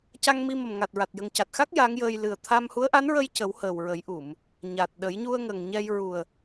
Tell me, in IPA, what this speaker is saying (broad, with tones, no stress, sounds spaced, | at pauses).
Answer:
c a˧ ŋ m i˧ m ə˨˩ m ŋ a˨˩ t̚ ɹ a˨˩ t̚ j ə˨˩ ŋ c a˨˩ t̚ x a˦˥ k̚ j a˧˥ ŋ j əː˧ j l ɨ˨˩ ə̯ t̪ʰ a˧ m h u˧˥ ə̯ ʔ a˧˥ n ɹ ə˧ j c ə˨˩˦ w h əː˨˩ w ɹ ə˨˩˦ j ʔ u˨˩˨ m | ɲ a˨˩ t̚ ɗ ə˨˩˦ j ɲ u˧ ə̯ ŋ ə˨˩ ŋ ɲ ɛ˧ j ɹ u˨˩ ə̯